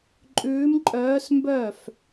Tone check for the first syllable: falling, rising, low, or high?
rising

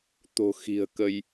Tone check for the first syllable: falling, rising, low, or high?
low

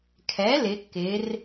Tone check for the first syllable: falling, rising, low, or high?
rising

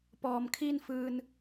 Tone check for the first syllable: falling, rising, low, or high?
low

